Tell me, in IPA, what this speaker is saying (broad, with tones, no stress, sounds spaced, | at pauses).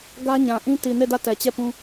ɡ ä˦ ɲ ã˨ ʔ ĩ˦ t i˨ n e˦˨ d ä˦˨ t ɛ˨ t͡ɕ ɛ˦˨ p ũ˦